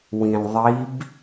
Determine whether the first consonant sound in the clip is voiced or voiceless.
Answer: voiced